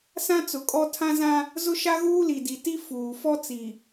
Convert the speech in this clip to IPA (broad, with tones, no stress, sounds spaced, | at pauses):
s ã˦ t͡s ʊ˨ kʼ ɔ˦ tʰ ã˦ z ã˦ | z ʊ˦ ʃ a˦ ɣ uː˦ l i˨ d i˨ t i˦ f uː˨ f ɔ˦ t͡s i˨